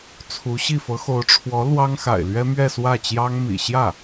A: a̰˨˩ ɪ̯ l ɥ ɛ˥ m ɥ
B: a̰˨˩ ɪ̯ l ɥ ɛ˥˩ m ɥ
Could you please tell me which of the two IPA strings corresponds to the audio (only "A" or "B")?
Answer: A